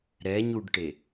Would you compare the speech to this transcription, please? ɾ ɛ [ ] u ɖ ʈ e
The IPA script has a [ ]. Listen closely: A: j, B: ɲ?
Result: B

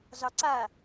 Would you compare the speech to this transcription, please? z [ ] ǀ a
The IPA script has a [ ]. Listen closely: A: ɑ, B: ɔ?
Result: A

